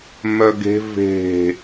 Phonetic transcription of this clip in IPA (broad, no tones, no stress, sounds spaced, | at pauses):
m œ ɡ e̤ v e̤